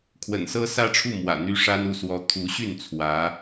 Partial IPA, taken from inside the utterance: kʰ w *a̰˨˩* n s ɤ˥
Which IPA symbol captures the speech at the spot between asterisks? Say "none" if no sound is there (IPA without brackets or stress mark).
ə̰˨˩